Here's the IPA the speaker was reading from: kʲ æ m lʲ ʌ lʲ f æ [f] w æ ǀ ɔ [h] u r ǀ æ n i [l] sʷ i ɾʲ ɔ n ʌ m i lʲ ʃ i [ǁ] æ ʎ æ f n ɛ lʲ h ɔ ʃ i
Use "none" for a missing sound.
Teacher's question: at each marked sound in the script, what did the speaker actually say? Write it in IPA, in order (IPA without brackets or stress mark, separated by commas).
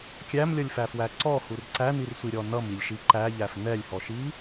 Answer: f, h, r, ǃ